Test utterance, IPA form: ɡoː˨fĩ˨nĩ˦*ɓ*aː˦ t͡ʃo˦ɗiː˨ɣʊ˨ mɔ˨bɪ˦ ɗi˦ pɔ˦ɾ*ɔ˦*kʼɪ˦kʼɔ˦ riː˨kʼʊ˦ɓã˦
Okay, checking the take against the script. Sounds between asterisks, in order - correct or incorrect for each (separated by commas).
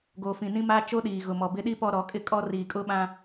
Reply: incorrect, incorrect